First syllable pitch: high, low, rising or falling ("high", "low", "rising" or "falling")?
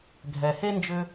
low